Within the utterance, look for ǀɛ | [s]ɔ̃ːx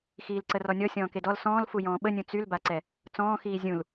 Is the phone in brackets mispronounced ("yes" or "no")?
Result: yes